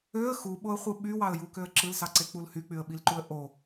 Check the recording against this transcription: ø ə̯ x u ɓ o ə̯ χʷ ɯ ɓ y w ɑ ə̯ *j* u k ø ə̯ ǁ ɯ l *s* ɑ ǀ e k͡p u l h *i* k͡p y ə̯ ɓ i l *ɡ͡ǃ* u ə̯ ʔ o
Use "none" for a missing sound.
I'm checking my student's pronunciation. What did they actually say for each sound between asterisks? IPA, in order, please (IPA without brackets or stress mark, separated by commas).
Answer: j, s, y, ǃ